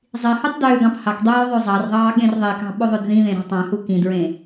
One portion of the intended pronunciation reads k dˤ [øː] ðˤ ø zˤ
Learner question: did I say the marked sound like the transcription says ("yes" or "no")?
yes